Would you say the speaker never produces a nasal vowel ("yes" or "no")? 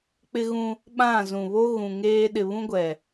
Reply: no